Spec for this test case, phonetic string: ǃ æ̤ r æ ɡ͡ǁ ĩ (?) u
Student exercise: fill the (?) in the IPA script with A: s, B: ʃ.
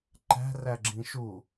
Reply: B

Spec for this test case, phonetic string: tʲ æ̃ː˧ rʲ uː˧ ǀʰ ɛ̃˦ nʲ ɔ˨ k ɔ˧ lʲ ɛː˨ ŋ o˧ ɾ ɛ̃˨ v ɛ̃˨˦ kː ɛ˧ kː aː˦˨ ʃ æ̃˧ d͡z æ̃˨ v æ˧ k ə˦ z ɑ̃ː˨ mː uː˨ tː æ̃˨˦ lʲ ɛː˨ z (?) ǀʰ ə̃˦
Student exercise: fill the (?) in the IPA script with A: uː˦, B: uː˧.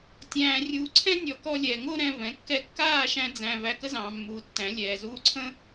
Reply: A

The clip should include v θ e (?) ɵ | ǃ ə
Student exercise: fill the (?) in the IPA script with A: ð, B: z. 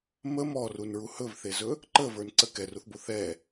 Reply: B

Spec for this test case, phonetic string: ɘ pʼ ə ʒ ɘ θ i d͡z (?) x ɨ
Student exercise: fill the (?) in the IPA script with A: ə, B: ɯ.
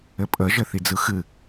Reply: B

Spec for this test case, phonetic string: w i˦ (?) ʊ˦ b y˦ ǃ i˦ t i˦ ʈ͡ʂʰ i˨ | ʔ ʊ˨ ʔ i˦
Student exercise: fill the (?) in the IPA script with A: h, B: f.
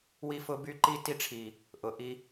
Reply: B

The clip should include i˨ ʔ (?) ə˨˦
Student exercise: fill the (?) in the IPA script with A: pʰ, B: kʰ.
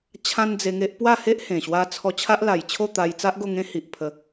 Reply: A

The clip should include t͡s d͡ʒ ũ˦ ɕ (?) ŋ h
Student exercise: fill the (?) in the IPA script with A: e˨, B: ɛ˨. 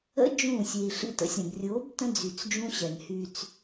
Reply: B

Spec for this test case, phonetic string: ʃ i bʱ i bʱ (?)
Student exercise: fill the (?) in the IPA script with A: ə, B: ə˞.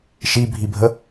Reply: A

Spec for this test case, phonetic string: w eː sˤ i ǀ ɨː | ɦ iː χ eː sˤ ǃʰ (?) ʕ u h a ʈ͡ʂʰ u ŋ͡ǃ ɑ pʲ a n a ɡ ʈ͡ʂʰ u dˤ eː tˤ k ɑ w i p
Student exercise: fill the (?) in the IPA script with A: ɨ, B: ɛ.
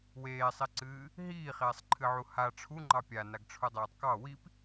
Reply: A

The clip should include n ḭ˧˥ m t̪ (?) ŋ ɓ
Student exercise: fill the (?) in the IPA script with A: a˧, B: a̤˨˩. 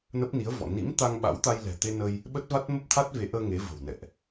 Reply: A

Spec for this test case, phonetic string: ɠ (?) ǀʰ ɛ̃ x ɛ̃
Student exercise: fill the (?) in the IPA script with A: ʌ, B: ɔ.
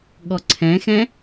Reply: B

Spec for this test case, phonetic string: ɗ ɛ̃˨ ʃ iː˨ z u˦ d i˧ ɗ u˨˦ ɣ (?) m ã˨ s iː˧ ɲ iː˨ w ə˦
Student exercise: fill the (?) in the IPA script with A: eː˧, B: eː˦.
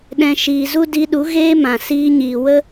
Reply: B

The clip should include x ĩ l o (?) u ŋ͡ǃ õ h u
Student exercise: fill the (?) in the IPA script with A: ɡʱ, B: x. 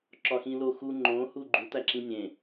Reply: B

